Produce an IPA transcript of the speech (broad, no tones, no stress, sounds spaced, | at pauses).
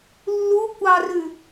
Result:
lː u kʷ ɑ r ʉ